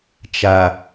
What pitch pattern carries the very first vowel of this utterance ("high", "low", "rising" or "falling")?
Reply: low